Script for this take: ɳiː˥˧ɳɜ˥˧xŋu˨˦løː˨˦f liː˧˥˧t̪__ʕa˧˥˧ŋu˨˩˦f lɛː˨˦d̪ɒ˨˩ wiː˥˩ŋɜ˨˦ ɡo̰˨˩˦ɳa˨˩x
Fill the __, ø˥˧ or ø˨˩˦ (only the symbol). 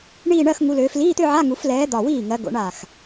ø˥˧